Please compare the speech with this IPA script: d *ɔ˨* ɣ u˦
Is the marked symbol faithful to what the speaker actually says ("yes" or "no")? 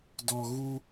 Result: yes